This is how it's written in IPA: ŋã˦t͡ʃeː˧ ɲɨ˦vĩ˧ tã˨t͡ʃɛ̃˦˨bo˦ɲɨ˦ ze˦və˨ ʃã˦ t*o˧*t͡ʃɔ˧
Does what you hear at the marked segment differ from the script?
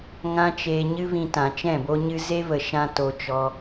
no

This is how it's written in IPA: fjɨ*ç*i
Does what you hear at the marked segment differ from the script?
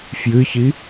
no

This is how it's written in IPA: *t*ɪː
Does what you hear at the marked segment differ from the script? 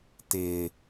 no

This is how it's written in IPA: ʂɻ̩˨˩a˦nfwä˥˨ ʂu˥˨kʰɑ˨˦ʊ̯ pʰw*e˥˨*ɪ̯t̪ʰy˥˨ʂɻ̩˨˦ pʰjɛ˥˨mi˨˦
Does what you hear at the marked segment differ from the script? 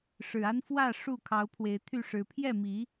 yes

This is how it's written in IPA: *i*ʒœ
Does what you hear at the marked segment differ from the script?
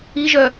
no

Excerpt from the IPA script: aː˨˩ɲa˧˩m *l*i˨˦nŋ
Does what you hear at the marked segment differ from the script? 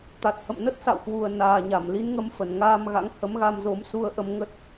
no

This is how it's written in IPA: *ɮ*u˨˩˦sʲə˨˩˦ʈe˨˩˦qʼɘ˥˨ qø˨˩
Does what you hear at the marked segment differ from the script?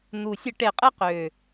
yes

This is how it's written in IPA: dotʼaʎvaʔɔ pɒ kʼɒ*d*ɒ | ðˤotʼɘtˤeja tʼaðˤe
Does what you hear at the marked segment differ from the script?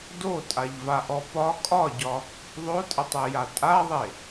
yes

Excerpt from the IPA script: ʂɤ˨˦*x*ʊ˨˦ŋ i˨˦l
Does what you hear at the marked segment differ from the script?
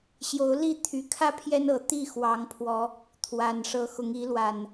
no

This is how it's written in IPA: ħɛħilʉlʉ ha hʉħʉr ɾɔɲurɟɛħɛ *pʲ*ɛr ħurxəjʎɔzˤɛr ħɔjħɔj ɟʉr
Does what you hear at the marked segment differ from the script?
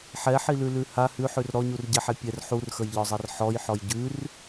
no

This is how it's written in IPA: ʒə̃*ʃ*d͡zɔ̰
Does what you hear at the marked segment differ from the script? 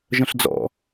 yes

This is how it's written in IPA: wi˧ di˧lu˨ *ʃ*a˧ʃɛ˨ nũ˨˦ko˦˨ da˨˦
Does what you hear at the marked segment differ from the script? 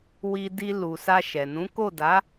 yes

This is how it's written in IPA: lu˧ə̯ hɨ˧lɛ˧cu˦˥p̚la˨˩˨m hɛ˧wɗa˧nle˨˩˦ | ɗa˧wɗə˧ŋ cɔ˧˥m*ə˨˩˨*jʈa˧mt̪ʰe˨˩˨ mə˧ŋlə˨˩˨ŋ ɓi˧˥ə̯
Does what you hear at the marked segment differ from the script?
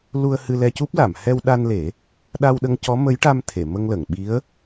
yes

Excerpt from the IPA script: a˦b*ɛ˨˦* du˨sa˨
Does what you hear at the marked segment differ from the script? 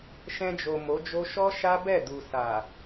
yes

